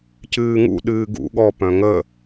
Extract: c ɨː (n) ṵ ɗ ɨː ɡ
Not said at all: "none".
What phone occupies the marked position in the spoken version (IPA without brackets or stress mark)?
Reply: ŋ